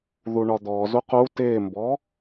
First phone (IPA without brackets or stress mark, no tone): ð